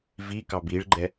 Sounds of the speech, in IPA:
v i k ɑ b i ɭ ɡ͡ǃ ɛ

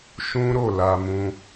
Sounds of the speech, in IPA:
ʃ ũ˦ ɾ o˦˨ l a˧ m ũ˦

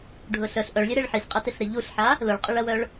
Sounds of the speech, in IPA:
ɖʱ ʊ ɬ œ ɬ ʔ œ ɭ lʲ ø ɾ e ɭ ħ i ɬ qʼ ɐ t ɪ ɬ ɾ ɪ ʎ u ɬ ħ a | l ʊ ɭ qʼ ʊ ɭ ɐ w œ ɭ

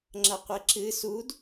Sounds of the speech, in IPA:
ŋ͡ǁ ɐ qʷ e ǁ ɨ s u d

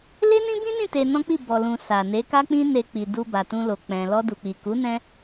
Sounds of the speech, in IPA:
l e˦ n ĩ˦ b ĩ˦ n ĩ˦˨ t e˧ n ɔ̃˦ k͡p i˦˨ b ɔ˨ l ũ˨ s a˨ n e˨˦ k a˦ k͡p ĩ˦ n e˧ k͡p i˨ d u˧ b a˨ t ũ˧ l o˨ k͡p ɛ̃˧ l ɔ˧ d u˨ k͡p i˨ k u˨˦ n ɛ̃˦

